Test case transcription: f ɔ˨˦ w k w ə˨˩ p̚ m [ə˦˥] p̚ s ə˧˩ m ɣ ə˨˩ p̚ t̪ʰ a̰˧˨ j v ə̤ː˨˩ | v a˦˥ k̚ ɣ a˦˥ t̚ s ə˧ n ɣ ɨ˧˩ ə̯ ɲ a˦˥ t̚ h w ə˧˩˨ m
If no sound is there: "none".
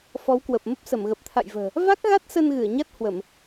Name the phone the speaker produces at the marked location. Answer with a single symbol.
ə˦˥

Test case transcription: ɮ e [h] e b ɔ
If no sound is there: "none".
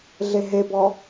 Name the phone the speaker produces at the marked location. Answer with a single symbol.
ɦ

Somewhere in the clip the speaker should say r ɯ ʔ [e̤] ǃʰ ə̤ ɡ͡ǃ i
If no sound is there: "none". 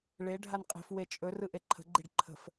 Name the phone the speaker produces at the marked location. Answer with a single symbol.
e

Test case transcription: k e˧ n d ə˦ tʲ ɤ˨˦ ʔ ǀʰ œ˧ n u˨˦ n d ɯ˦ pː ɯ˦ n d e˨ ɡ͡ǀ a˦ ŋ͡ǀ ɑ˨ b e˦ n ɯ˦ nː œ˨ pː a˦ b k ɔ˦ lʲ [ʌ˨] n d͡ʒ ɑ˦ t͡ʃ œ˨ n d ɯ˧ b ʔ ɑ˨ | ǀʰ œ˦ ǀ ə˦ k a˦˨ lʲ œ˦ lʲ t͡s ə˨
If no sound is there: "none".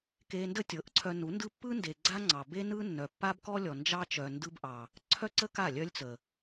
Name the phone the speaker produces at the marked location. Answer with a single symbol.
ɔ˨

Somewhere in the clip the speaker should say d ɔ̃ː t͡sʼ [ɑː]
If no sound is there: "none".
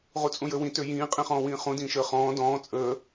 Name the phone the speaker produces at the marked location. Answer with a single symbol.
əː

